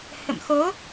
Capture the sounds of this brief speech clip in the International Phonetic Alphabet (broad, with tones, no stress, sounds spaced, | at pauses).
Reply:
h ə̰˧˨ m x o˨˦